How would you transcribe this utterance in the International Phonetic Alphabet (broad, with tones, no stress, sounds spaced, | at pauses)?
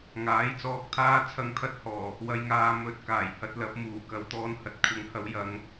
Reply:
ŋ aː˨˥ j t͡s ɔː˧ k̚ t̪ʰ aː˥ t͡sʰ ɐ˧ ŋ t̪ʰ ɐ˧ t̚ h ɔː˨˩ | w ɐ˨ j ŋ aː˨ m ɵ˨˥ t̚ k aː˨˩ j h ɐ˧ t̚ l ɐ˨˥ p̚ m uː˨˩ k ɐ˨˧ w t̪ ɔː˧ n h ɐ˨ t̚ kʷʰ ɐ˨˧ ŋ h ɐ˨˥ w j ɐ˨˧ ŋ